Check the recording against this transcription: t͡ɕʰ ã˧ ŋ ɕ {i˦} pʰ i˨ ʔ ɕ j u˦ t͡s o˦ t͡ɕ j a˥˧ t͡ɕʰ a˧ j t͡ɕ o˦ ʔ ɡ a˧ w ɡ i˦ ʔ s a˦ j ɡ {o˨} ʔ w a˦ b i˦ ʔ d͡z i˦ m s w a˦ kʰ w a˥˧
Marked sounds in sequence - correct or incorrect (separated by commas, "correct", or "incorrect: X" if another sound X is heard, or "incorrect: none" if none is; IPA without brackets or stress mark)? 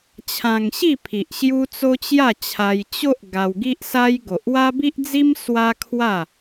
incorrect: i˥˧, correct